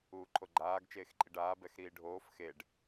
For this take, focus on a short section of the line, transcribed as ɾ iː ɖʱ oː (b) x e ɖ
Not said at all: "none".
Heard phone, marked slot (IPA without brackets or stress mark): f